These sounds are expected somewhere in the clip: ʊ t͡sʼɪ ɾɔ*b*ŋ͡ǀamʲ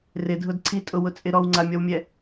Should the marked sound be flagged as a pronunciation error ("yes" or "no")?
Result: yes